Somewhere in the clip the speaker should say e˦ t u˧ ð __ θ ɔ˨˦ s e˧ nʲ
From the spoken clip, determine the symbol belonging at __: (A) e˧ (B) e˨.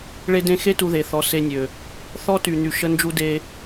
B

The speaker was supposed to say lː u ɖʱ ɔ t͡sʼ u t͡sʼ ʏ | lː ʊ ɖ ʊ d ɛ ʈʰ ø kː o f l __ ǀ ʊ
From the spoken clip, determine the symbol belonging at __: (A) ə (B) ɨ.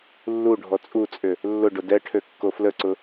A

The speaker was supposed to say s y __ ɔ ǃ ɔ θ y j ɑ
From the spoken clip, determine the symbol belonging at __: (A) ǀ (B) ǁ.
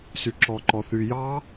B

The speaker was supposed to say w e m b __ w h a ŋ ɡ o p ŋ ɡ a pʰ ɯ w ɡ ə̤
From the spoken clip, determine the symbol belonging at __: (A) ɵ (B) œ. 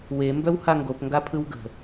B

